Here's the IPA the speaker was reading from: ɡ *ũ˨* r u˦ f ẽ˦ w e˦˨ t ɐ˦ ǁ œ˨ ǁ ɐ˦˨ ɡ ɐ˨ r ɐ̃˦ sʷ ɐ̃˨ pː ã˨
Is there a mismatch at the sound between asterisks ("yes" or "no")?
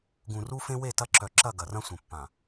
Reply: no